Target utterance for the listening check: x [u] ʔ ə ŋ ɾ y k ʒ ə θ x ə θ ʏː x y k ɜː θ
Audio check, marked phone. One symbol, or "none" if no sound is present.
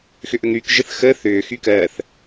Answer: ʏ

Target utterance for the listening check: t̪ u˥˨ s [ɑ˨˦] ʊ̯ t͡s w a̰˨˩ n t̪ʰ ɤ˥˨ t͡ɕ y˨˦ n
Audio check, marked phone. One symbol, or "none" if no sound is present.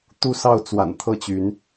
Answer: ɑ˥˨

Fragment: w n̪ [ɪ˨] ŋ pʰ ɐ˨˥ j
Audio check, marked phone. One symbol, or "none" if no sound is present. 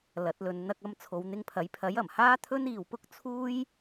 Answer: ɪ˧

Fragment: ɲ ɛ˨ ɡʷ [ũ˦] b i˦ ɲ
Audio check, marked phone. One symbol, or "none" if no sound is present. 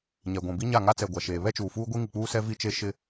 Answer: ũ˨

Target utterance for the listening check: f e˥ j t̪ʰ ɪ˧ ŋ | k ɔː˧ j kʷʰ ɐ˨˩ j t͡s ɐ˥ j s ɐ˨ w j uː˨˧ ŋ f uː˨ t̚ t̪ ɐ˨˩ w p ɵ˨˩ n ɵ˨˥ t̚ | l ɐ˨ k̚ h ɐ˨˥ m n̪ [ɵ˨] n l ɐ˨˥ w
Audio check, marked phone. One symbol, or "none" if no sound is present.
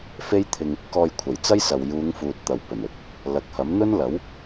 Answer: ɵ˥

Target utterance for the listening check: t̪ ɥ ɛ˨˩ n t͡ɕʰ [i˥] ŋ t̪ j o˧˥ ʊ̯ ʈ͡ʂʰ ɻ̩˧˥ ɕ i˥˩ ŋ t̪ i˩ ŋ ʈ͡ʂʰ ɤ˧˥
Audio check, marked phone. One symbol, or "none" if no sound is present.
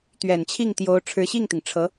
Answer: i˥˩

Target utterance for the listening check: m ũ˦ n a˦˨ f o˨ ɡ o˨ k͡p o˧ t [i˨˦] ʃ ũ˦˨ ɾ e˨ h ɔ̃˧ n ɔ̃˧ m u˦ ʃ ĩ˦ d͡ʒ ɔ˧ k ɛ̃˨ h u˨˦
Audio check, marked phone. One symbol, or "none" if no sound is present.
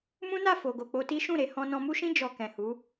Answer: i˦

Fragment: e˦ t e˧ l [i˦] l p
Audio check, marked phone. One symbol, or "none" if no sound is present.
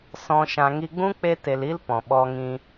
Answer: i˦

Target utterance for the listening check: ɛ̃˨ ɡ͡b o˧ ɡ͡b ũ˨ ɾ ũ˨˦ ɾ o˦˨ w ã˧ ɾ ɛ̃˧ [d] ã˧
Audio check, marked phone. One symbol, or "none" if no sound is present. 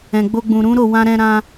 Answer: ɾ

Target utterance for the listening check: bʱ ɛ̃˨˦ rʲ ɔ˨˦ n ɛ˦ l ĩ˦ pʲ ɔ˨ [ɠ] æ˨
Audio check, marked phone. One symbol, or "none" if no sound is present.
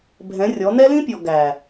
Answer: ɡ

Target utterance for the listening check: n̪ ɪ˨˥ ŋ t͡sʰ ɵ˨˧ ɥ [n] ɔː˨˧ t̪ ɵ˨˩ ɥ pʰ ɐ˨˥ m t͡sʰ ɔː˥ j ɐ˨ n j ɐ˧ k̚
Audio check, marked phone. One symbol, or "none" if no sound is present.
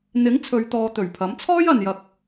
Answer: t̪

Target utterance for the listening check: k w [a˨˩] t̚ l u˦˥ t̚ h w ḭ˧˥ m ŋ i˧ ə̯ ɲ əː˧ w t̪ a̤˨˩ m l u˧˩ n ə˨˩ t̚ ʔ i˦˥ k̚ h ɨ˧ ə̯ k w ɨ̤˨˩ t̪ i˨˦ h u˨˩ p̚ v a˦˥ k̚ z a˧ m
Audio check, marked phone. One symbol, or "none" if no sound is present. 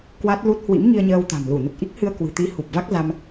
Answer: a˦˥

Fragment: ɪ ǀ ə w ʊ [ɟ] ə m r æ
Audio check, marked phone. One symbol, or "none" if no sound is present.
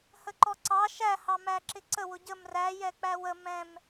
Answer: ɟ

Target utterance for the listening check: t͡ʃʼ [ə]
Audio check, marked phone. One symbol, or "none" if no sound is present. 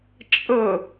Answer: ə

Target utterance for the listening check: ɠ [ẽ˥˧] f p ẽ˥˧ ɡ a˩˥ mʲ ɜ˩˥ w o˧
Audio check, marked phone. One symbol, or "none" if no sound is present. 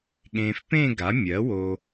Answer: ẽ˧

